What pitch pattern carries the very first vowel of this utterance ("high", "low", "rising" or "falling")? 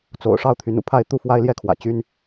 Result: low